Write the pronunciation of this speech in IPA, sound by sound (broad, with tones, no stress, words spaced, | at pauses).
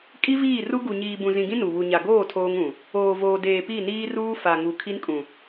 kʼi˦viː˦˨ru˦ ɡu˨ ɲiː˨bũ˨zĩ˨ɡĩ˦ nu˨ βu˨ɲa˨ɡoː˦˨ tʰoː˦ŋũ˨ | oː˨voː˨deː˨ pi˦˨niː˦ruː˦ fa˨ŋu˨ kʰi˦nkʼũ˨